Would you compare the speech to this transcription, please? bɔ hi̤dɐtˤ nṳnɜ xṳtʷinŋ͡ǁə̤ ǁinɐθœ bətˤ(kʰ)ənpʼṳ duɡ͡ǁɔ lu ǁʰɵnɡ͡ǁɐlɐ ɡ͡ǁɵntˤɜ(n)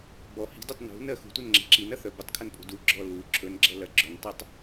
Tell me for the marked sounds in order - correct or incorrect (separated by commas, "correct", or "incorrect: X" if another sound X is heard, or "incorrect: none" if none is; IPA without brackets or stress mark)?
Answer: correct, incorrect: tˤ